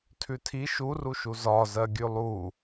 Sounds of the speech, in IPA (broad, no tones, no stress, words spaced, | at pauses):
tʰʉtʰi ʃuruʃu zɒzɜ ɡʲʉlˠu